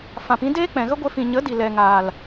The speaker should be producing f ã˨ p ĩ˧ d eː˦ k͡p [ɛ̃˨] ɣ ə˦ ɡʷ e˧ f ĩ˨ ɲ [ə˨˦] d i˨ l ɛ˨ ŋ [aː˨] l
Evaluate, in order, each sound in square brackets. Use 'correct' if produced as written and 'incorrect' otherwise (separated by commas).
correct, correct, correct